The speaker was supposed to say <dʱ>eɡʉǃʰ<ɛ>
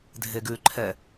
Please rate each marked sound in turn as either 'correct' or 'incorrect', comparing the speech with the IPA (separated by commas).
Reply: correct, correct